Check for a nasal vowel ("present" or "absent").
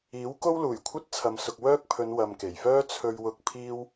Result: absent